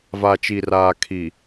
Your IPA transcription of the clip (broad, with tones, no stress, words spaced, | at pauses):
va˨t͡ʃi˨raː˨ kʰi˨